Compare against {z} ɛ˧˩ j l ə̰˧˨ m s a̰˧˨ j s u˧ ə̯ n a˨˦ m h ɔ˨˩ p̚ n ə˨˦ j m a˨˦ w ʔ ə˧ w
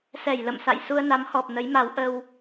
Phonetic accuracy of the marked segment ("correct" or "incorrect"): incorrect